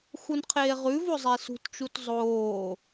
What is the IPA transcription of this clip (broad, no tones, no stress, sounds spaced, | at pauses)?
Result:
x u n qʰ eː ʁ ʉ v o zˤ e s ṳ t t͡ʃ u t zˤ oː